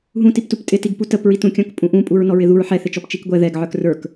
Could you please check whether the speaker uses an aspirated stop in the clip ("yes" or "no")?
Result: no